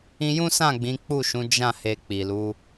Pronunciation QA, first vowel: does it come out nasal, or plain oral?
nasal